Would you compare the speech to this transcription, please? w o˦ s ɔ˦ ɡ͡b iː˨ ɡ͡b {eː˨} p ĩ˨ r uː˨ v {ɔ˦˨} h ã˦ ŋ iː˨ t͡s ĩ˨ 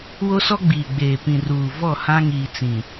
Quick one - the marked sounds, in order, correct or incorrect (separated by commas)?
correct, correct